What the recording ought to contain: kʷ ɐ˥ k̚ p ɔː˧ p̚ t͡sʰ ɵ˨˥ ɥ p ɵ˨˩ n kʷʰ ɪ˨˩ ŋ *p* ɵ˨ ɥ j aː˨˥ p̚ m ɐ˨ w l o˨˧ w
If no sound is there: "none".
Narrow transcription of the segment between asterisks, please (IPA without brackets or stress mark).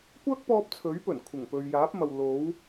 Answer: p